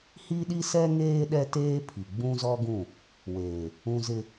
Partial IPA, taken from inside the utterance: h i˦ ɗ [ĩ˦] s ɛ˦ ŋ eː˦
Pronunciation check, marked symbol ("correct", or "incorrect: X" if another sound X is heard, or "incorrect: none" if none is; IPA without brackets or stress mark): incorrect: i˦